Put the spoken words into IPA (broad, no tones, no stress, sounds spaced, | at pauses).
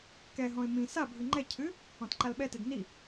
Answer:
k ɛ ɦ ɔ̃ ɪ̯ m ĩ s a bʱ ɨ ŋ͡ǃ ɛ cʰ ɨ | ɔ̃ t ǃ a l ɓ ɛ t e d n i